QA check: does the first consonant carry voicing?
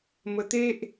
yes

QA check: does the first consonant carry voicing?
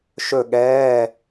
no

